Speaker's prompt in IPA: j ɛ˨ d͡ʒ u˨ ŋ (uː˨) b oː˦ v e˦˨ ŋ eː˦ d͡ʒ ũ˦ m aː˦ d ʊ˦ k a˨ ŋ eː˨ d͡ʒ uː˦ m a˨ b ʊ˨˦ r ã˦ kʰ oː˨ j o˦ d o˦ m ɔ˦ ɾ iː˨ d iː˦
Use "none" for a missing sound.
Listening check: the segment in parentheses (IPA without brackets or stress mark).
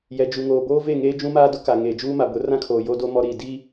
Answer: oː˨